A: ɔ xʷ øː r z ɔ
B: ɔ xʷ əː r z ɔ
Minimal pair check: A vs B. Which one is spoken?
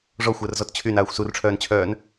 B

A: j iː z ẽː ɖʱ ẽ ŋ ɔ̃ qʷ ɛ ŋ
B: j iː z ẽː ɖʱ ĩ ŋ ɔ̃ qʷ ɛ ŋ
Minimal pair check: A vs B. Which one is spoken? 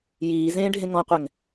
A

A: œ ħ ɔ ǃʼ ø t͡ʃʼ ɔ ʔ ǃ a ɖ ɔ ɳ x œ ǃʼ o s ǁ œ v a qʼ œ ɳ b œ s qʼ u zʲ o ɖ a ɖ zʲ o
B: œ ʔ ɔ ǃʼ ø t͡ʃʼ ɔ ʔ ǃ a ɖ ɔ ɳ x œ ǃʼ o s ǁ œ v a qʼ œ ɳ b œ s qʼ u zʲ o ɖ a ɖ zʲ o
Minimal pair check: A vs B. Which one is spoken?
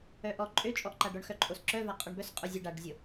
B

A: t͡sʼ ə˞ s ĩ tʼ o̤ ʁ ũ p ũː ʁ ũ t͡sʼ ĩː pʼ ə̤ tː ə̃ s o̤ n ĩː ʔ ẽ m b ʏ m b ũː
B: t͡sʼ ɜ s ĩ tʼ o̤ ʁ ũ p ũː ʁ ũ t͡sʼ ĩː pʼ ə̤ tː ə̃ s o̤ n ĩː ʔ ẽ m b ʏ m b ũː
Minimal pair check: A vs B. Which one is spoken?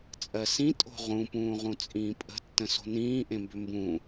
B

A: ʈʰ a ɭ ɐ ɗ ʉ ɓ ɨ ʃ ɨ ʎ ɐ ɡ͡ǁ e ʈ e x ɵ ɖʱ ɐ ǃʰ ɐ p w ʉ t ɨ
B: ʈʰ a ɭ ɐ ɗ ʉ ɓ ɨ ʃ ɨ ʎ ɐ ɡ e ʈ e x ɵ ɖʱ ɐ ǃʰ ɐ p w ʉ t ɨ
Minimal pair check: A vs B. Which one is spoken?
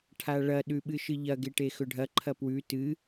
B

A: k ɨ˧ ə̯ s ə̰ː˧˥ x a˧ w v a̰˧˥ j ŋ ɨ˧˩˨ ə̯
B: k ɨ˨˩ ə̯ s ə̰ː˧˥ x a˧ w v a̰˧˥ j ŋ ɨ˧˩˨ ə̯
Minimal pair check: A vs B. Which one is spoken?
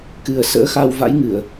B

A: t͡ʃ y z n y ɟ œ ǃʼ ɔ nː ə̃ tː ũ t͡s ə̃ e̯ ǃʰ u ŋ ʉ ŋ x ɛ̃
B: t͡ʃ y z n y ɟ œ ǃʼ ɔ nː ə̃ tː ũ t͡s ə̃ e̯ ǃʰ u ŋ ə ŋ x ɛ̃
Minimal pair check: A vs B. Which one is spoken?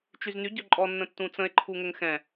B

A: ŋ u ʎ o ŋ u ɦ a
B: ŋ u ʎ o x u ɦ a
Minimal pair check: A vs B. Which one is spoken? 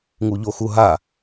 B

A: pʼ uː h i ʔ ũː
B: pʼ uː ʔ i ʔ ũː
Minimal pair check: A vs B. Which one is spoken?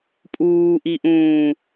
B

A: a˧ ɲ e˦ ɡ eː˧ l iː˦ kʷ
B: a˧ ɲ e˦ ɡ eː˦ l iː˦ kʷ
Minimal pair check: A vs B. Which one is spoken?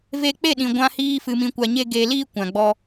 A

